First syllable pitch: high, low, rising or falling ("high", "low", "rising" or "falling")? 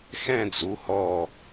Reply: falling